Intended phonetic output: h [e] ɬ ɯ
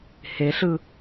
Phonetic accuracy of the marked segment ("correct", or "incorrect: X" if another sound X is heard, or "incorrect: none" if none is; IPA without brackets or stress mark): correct